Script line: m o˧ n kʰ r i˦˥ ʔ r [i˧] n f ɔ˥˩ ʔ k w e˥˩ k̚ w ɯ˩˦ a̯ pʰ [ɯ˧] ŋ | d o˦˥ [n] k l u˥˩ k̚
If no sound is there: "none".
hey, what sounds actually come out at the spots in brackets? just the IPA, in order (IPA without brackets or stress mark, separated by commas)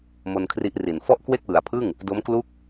i˨˩, ɯ˥˩, m